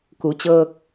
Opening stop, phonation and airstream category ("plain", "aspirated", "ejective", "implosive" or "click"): plain